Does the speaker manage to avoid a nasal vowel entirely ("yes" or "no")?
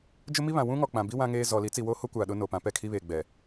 no